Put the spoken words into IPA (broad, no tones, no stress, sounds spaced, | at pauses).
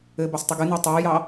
ɘ b ɑ s tˤ ɘ ɡ ɨ n ɛ tˤ ɛ j ɑ